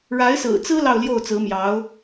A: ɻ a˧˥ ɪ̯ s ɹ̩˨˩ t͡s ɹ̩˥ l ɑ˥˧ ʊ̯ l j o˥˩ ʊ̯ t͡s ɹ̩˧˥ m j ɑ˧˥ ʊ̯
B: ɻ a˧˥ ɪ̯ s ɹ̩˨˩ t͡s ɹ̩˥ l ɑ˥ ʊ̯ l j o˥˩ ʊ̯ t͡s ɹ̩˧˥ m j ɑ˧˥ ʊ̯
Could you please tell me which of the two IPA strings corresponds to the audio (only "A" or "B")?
A